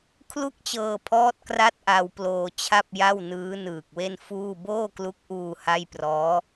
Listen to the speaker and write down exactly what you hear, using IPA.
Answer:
kʰ l u˥˩ k̚ t͡ɕ ɤː˧ pʰ ɔː˦˥ t̚ k r a˥˩ t̚ ʔ a˧ w p l oː˧ t͡ɕʰ a˥˩ p̚ j a˥˩ w n ɯː˦˥ n ɯː˨˩ k̚ w e˥˩ n f uː˥˩ b oː˥˩ k l u˦˥ k̚ ʔ uː˧ h a˥˩ j p r ɔː˦˥

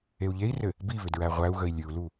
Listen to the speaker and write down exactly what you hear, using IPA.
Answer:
e u̯ ʎ e i̯ r ɘ | b i β ʏ d ɹ æ ʁʷ æ u̯ ɣ ə i̯ lʲ ɨ u̯ l u

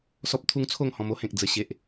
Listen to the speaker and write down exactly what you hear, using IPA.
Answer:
s ɔ˦ p̚ t̪ʰ u˦ ŋ t͡sʰ o˥˧ ŋ h ɔ̃˧ m o˦ h ẽ˨ k̚ d͡z ə˨˩ ɕ e˨ ʔ

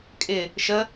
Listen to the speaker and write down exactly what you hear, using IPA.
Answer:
kʼ ɪ | ʃ ə

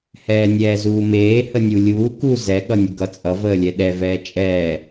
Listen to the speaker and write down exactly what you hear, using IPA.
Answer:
h ɛː nʲ ɛː z uː m eː h ə nʲ u lʲ uː k u z ɛ ɠ ʌ nʲ ʌ ɡ ʌ t͡sʼ ʌ v əː lʲ ɛ ɗ ɛ v ɛː t͡ʃʼ ɛː

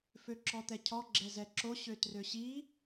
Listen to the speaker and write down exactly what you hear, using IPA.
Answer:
f ø ǁ ɔ t̪ ɛ cʰ ɔ ɡ͡ǁ ɛ z ɛ ǁ o ɕ ø t r ø ɕ i

